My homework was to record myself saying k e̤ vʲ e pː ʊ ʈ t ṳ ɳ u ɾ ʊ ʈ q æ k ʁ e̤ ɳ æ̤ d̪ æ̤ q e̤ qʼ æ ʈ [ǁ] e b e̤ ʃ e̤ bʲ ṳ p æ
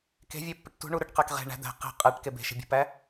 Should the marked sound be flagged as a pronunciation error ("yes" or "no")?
yes